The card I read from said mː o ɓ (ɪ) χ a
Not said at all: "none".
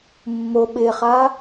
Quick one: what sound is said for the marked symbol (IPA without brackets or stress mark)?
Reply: ɪ